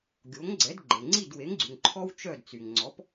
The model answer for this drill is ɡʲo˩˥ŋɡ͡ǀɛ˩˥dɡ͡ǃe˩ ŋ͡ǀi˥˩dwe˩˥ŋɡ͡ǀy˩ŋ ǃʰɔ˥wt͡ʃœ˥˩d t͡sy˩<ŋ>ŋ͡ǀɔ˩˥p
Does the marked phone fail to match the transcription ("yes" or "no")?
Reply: no